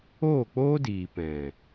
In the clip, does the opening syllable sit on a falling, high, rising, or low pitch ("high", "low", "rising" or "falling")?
falling